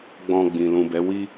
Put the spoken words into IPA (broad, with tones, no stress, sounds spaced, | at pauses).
ɡ͡b ɔ̃˧ ɡ͡b ĩ˨ l ũ˨ b ɛ˨˦ w i˦